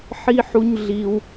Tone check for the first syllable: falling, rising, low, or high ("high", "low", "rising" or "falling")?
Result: high